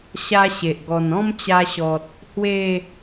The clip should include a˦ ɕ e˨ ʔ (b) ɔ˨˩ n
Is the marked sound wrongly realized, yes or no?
yes